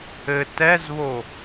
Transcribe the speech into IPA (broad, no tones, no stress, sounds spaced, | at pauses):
ɘ t ɛ z β o